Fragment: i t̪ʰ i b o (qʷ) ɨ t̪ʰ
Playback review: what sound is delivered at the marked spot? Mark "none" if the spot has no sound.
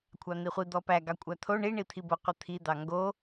qʷ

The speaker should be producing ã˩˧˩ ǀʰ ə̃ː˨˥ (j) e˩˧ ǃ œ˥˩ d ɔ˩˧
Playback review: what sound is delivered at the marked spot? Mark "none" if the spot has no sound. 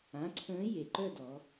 j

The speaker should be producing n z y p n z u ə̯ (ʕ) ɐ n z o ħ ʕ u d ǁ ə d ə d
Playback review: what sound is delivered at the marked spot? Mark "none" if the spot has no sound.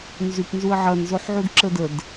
ʕ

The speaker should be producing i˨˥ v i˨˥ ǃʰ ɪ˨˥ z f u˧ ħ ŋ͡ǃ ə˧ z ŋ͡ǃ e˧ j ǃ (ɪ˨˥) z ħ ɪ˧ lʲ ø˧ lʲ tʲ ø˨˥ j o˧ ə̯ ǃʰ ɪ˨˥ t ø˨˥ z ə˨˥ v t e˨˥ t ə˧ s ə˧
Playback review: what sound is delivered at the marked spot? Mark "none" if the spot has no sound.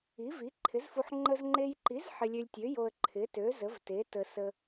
i˨˥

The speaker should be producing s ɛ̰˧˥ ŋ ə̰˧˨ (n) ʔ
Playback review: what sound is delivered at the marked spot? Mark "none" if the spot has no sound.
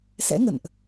n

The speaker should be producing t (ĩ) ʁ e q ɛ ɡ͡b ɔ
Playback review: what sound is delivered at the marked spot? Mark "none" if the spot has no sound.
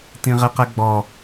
ĩ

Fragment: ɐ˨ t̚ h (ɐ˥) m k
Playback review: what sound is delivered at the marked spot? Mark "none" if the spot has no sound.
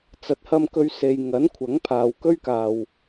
ɐ˧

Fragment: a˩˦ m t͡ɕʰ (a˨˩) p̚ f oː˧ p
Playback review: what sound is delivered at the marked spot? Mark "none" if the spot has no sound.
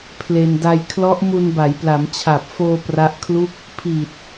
a˨˩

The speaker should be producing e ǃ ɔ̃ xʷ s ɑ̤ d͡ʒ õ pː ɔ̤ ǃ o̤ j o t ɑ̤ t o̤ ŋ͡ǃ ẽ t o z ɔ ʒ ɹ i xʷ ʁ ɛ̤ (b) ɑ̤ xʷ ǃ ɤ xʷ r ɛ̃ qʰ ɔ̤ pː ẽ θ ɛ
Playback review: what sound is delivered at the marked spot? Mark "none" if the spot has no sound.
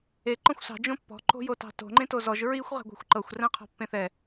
ɡʷ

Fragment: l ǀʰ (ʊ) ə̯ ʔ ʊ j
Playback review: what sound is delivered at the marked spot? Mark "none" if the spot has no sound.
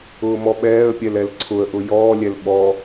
ʊ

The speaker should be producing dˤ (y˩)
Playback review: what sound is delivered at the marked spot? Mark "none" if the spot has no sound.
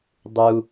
u˩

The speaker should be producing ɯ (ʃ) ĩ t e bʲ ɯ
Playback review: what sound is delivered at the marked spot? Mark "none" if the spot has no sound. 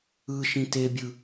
ʃ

